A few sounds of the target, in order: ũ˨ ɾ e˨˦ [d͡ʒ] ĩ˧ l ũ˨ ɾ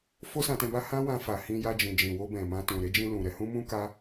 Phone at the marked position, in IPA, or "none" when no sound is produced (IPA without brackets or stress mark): d͡ʒ